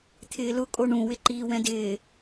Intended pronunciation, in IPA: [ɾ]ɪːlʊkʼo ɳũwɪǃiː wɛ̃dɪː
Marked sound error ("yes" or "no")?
yes